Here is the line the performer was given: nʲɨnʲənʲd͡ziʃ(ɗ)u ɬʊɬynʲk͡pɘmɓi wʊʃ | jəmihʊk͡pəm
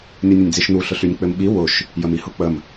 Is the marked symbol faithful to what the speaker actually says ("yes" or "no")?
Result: no